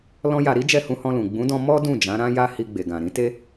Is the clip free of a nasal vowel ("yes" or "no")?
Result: no